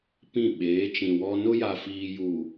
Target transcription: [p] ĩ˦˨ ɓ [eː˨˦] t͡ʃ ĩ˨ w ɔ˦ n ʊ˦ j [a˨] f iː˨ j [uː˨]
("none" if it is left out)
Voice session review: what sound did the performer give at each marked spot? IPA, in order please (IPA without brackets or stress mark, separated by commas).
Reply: p, eː˨˦, a˨, uː˨